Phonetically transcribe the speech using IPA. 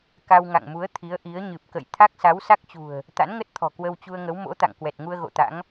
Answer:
k a˧ w ŋ a̰˧˨ ŋ m u˨˦ ə̯ t̪ʰ i˨˦ ə̯ ʔ i˨˦ ə̯ ɲ ɨ˨˩ p̚ k ə̰˧˨ j t̪ʰ a˦˥ k̚ s a˨˦ w s a˦˥ k̚ t͡ɕ ṳ˨˩ ə̯ | t̪ a̰˧˥ n ŋ ə˦˥ t̚ t̪ʰ ɔ̤˨˩ k w ə˧ w t͡ɕ u˧ ə̯ ŋ ə˨˦ w m o̰˧˥ t̪ a̰˧˨ ŋ k w ɛ˨˩ t̚ ŋ u˧ ə̯ ɣ o̰˧˨ t̪ a̰˧˥ ŋ

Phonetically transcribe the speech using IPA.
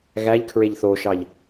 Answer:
ɣ æ ʎ kʰ ɹ e ʎ θ o ʃ ɑ ʎ

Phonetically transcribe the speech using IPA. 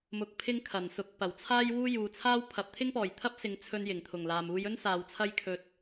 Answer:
m ʊ˨ k̚ pʰ ɪ˥ ŋ kʰ ɐ˨˩ n s ʊ˨˥ k̚ p ɐ˨˩ w t͡sʰ aː˥ j w uː˥ j uː˨ t͡sʰ aː˥ w pʰ ɐ˨ p̚ t̪ʰ ɪ˥ ŋ p ɔː˨˩ j t̪ʰ ɐ˥ p̚ s ɪ˨ ŋ t͡sʰ ɵ˧ n j ɪ˨˩ ŋ t̪ʰ ʊ˨˩ ŋ l aː˨ m uː˧ j ɵ˥ n s aː˨ w t͡sʰ ɐ˥ j kʰ ɵ˧ t̚

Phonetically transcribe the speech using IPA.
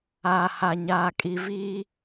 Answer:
aː˨ h a˨ ɲ aː˨ kʼ i˨ v iː˦

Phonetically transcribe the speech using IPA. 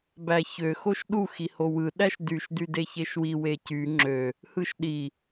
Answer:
b æ ç ø x o ʃ ɗ u x i h o w ɯ ɗ æ ʃ d y ʃ d y d e ç e ʃ w i w e c y ŋ͡ǁ ø | h ɯ ʃ ɗ i

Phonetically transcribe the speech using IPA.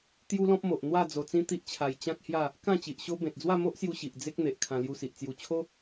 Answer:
t̪ j u˦ l ɔ̃˦ p̚ m o˨ ʔ n̪ w a˥˧ d͡z o˧ t͡s ĩ˦ t̪ i˦ ʔ t͡ɕʰ a˧ j t͡ɕ ã˦ k̚ h j a˥˧ | k ã˥˧ t͡ɕ i˨ ʔ ɕ o˦ b ẽ˨ t̚ d͡z w a˥˧ m o˦ ʔ s j u˧ ɕ i˨ ʔ d͡z e˦ k̚ n̪ e˨ ʔ kʰ ã˧ l j u˧ s i˨ ʔ t͡s j u˧ t͡ɕʰ o˦

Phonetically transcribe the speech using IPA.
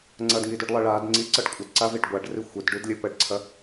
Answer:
ŋ͡ǀ ɐ d ŋ i d ʉ ɖ lˠ ɐ ɭ a d ŋ͡ǀ i ǀ ʌ ɖ kʷʼ ə d ǀ a v i ɖ ɡʷ a ɖ r i xʷ ə d ɖ ʉ d lʲ ə p ə ɖ ǀʰ ɐ

